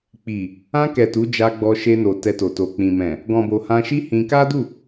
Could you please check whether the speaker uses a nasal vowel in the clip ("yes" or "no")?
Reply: yes